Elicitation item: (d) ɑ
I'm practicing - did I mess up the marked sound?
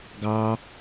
yes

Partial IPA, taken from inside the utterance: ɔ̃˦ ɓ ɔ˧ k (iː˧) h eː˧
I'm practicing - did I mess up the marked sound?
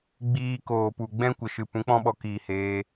yes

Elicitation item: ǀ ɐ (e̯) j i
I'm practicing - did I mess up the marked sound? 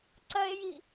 no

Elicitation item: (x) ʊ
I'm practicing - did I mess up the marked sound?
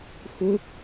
no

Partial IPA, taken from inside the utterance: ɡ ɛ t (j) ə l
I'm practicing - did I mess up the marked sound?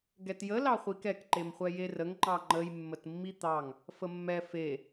no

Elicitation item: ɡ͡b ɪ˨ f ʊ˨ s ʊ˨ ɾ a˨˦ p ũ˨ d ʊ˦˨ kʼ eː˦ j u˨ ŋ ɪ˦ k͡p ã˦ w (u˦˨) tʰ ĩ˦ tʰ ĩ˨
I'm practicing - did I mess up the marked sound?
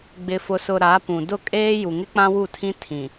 no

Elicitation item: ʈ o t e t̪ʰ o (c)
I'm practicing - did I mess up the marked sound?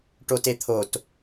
yes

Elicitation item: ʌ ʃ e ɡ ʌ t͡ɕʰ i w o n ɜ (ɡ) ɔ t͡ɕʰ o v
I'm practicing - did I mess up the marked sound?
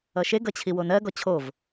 no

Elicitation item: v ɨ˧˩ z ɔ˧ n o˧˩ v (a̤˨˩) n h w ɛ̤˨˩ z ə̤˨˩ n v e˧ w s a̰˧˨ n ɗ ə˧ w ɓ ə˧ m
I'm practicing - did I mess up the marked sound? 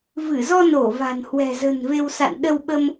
no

